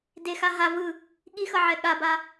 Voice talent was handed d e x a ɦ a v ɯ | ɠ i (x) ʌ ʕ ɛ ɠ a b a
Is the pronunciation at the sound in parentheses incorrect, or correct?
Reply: correct